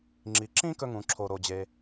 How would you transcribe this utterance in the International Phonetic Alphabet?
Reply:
ŋ͡ǁ i˩ ǁ ĩ˥ k ɵ˧ ŋ ũ˩ ǁʰ o˩ ɾ o˩ d͡ʑ e˩

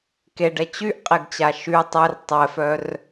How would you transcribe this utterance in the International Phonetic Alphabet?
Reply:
k e ɖ ɛ t͡ɕ y ʔ qʼ e ɡ t͡ɕ a ʃ y tˤ ɛ r tˤ ɛ f œ r

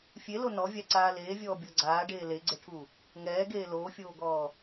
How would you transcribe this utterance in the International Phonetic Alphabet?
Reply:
fʲ e l o n ɔ vʲ a ǀ aː l eː vʲ ɔː bʲ ɔ ɡ͡ǀ aː ɖ eː l e ɡ͡ǀ e ʈʰ u | ŋ ɛː ɡ eː l oː fʲ oː ɡ ɔː

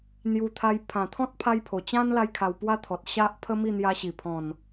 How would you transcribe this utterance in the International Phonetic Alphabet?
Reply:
n̪ j u˧ t̪ʰ a˧ j pʰ ã˨˩ t̪ʰ ɔ̃˦ t̚ pʰ a˧ j pʰ o˨˩ t͡ɕ ã˦ n l a˧ j kʰ a˧ w p w a˦ t̪ʰ ɔ˨ t̚ ɕ a˦ ʔ pʰ ə˦ m i˥˧ n̪ j a˧ ɕ i˨˩ pʰ ɔ̃˨˩ n

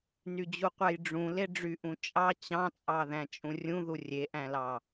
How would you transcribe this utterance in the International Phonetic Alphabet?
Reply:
n y d͡ʑ u qʷ æ j ɖ͡ʐ ũ l e ɖ͡ʐ y ʔ ũ t͡ʃʼ ɑ t͡ɕ ɑ̃ t͡sʼ ɑ ð æ̃ t͡ʃʼ ũ rʲ ũ ð u rʲ e ʔ æ̃ l ɑ

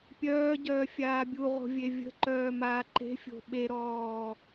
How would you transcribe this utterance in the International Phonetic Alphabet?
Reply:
pʲ œː ɟ œː fʲ aː bʲ u ʁ o̤ vʲ e vʲ ə̤ ǃ œː m aː ǃ e̤ fʲ o̤ ɓ e ɾ ɔː

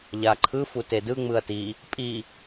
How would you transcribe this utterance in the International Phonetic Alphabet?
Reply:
ʎ a ǃʰ ɯ f u t e d ɯ ŋ͡m ɯ ɐ̯ t i | pʼ i

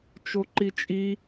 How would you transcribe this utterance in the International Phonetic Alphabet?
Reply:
t͡ʃ o ǃ i t͡ʃʼ i

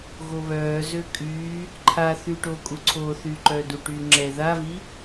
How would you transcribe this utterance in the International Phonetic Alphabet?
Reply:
ɣ o β œː z ø kʼ yː | ǃʰ a θ yː ʈ oː kʼ u ǀʰ oː θ yː ǃ œː d u ʈ yː ŋ͡ǁ ɛ ð a v i

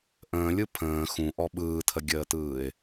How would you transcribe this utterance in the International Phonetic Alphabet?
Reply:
ʔ ə̃ː lʲ ɯ pʰ ə̃ː x ũ ʔ ɔ ɓ ɯː tʰ ə ɡʲ əː t ɯː ɪ̯

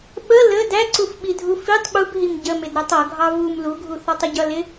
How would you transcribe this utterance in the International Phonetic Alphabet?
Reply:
ɓ ə l ə d æ ǀ u f ɓ i dʱ u f i tˤ ɓ u b ɦ i m ɟ ə m ɪ d ɾ æ tˤ ʌ ɡʱ ɑ v u m l u ɡʱ u θ ɑ tˤ ə ɟ ʌ l ɪ

